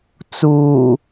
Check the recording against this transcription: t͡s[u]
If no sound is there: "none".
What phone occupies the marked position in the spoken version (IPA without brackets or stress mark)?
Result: uː